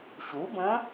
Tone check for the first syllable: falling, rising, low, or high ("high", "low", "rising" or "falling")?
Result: rising